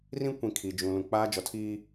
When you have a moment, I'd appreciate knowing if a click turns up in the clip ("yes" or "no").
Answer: no